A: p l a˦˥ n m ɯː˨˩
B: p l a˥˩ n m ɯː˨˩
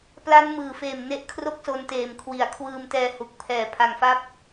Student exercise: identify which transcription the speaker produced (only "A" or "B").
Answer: A